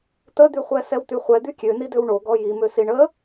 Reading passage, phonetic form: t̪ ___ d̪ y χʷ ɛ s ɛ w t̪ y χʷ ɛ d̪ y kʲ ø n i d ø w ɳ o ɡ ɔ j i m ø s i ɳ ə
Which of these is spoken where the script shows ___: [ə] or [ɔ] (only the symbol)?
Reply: ə